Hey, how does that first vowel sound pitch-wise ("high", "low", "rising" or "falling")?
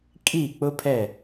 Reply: falling